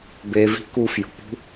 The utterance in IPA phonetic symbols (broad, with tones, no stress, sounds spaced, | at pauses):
b e˧ v i̤˦ k u˧ f j o̤˨ p ṳ˦